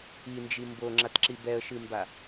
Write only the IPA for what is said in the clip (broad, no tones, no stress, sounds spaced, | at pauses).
i n d͡ʒ i m b o ŋ͡ǁ a t ǁ i b ɛ ə̯ ʃ ɨ m b a